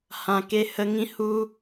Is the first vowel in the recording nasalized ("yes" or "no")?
yes